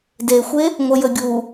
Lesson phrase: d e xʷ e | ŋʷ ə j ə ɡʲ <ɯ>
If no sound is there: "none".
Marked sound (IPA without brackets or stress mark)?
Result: u